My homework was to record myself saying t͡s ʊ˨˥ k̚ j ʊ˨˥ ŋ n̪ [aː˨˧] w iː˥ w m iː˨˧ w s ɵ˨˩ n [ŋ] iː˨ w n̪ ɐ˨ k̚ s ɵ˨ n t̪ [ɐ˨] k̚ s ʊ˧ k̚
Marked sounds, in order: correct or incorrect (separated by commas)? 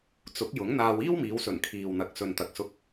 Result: incorrect, incorrect, correct